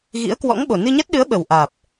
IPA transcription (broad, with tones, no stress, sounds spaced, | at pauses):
ɣ ḭ˧˥ ə̯ k w ɔ̰˧˥ ŋ ɓ o˨˩ n ɨ˧ ɲ a˦˥ t̚ ɗ ɨ˨˦ ə̯ ɓ ə˨˩ w ʔ aː˨˩ p̚